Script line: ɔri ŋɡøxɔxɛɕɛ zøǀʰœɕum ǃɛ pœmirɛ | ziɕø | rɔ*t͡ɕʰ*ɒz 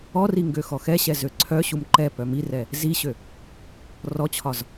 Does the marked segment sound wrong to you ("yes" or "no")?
no